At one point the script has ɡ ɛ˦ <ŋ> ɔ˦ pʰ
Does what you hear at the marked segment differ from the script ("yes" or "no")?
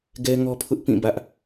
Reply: no